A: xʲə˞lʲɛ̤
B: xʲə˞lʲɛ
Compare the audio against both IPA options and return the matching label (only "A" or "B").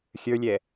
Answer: B